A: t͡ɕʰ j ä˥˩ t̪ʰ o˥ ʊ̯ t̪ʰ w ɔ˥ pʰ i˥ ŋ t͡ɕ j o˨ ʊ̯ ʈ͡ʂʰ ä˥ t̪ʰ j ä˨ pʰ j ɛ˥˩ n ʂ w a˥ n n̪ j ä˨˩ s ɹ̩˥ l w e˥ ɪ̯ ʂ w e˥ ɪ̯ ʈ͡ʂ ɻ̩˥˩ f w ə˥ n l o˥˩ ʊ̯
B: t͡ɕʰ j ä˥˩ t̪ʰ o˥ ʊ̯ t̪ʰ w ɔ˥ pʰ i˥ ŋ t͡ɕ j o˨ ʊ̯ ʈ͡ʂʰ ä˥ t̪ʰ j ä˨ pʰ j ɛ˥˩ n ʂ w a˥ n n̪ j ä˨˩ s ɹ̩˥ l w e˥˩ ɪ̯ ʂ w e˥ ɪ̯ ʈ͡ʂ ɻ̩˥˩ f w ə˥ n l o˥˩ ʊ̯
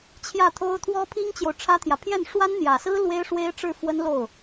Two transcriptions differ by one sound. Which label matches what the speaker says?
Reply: A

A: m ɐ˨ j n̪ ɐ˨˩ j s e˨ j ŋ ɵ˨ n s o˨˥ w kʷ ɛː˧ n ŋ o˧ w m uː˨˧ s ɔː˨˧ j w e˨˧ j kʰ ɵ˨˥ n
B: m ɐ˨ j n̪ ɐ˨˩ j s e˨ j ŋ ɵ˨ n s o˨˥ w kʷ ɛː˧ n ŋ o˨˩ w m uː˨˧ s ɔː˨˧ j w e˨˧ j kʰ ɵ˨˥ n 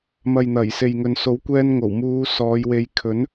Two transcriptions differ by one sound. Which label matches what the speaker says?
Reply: B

